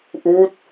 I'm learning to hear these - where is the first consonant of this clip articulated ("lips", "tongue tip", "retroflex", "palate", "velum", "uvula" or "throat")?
throat